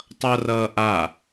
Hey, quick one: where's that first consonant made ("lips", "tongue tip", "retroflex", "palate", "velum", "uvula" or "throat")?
tongue tip